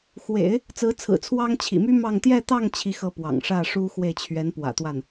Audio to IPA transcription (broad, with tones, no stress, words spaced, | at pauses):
xwḛ˨˩˦ɪ̯ | t͡sɹ̩˧˥t͡sʰɹ̩˨˩t͡sʰwɑ˥ŋ t͡ɕʰḭ˨˩my˥ mɑ˥˧ŋ t̪jɛ˥˧t̪ɑ˥˧ŋ t͡ɕʰi˥˧xɤ˥˩ pwɑ̰˨˩ŋ ʂä˥˩ ʂu˥xwe˥˩ɪ̯ t͡ɕʰɥɛ˧˥n pwä̰˨˩t̪wa˥˩n